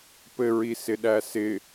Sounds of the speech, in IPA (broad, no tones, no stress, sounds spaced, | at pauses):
p ɘ ɹ i s ɪ ɗ æ s ɪ